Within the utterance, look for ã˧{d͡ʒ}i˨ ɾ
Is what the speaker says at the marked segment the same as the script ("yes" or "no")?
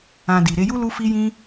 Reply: no